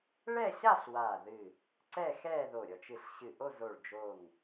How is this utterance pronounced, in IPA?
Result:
ɭɛ˥˧ɕa˥˧ɬ waː˧˩ðɨ˧˩ | ǀɛ˥˧xɛː˥˧ ðo˧˩ɾʲɔ˧˩t͡ʃ ɨ˧˩ɬ ɕɨ˧˩ʔo˥˧zo˧˩ɭ d͡ʒo˧˩ŋ

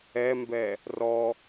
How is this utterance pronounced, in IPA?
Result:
ɛmbɛ | rɔ

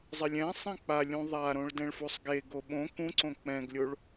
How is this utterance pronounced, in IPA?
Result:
zˤɪlʲɛ̃sˤẽ k͡pa lʲũðˤaɾõɭ dɛ̃ɭfusˤɡeɡo ɓõ kũǀõ k͡pɛ̃ɡlʲoɭ

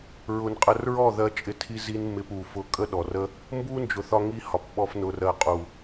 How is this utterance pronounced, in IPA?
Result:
ɹʊ˧n qʼə˧rɹɔ˦˨ ðɜ˦t͡ʃʼɪ˦tʰi˦zi˦n mɪ˧p u˨fʊ˧ kʼə˦ɗɔ˨rə˦ | mbu˦nd͡ʒʊ˨θɒ˧ ŋi˧ hɒ˨p ɓɔ˧fnʊ˨ rɜ˨qʼu˨

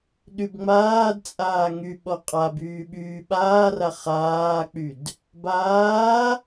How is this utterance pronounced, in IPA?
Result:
ɗybŋ͡maːdt͡sʼaː ŋy ɓɔqʼabyː ɓyːɓaːra χaːk͡pyd | baː

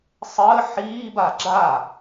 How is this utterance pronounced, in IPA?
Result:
sˤəː ħiːba ɡ͡ǁa

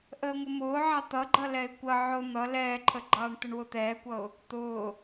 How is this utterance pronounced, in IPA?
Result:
ʔəːŋʷəmʊːʕɑ t̪ʌɡ͡ǃʌ lɛɪ̯kʷə ʕʊ n̪ʌ lɛːǃʰəɡ͡ǃɑːɳ t̪əɳwʊt̪ɛːkʷʌʊ̯ | t̪ʊː

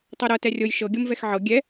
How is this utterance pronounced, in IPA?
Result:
tˤɤɾɤ tɛrʲɤj ʃɤ ɡʲɤmvɛxʕɤ ɡʲɛ

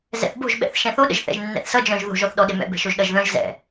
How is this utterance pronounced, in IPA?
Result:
zɛ̰θbo̤ʒ ɓɛ̰θʃɛ̃θoɗə̰ʒ θɛ̰ʒnːɛ̰θsʌ d͡ʒœ̃ʒ ðo̤ʒɔθɗɔ ɗemɛ̰bɛ̤ ʃoʒɗʌʒðœ̃ʒ zɛ̰

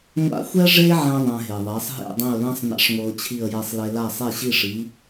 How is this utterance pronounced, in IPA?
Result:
ŋʷa̰˥ xʷɛ˥ ʐe˥ʕɛ̃˧ ðˤɛ̃˧ɦe˩ðˤɛ˩˥sˤ ɦḛ˥˩dˤẽ˥˩ʊ̯lã˥sˤ na̰˥ʂŋʷɤ˧ʊ̯t͡ɕʰi˥˩ə̯jɛ˧sˤ le˧la˥˩ sˤe˥˩ɕi˥˩ʂi˩˥

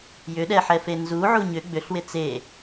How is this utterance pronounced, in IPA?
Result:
jʏɗɛħɛfe nzuʕu ɲʏ ɡ͡bʏɬwɪ t͡se

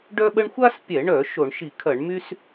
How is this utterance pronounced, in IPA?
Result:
ɖœ˥ɓə˥ɳ xʷa˥spʲɛ˧˩˧ɳœ˧˩˧ ʃo˧˩˧ɳ ʃi˧˩˧kʰɐ˧˩˧ɳmy˥s

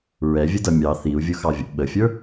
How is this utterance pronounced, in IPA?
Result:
ɹɛvʲə dʌmʲɑ θiu̯ vʲʊxɑvʲə̰ ɓəfʲə˞

